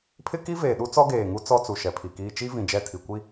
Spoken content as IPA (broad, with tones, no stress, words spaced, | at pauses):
pʰɪ˦ki˦veː˨ɗu˦ t͡sɔ˦ɡeː˨ŋu˦ t͡sɔ˦t͡su˨ ʃɛ˨pʰi˨kiː˦ t͡ʃi˦vĩ˨ d͡ʒɛ˦˨tʰi˨kʷi˦